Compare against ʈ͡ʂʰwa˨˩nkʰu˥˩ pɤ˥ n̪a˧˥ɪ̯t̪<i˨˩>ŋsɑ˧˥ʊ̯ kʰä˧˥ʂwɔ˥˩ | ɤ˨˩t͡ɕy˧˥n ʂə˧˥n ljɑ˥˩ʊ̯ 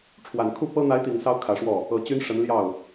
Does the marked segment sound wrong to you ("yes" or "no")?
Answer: no